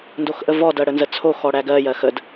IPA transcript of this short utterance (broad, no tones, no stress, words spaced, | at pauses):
ndoxʔəvɔ dɜɽənzət͡sʰo xɔɽæɡɜ jɜxəd